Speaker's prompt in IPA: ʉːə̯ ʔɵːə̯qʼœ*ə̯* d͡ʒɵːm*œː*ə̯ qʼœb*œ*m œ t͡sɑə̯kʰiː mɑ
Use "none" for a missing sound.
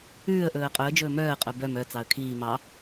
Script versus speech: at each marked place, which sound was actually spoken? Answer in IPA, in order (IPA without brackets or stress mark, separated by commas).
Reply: ə̯, œː, œ